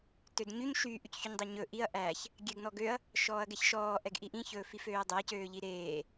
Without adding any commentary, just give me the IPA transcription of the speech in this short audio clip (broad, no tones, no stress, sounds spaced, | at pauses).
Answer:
t ø d ɲ y ɲ ʃ yː ʔ y c ç y ɲ dˤ ø ɲ ɵ ʔ i ɐ̯ ʔ æ ç | ɡʲ ɛ ɡ n ɔ ɡ ø ɐ̯ | ʃ ɔː ɐ̯ ɡ ɛ ç ʃ ɔː ʔ ɛ ɡ ʔ i ʔ ĩ ç ɵː f i f øː ɐ̯ dˤ æ c øː ʎ i ɾ eː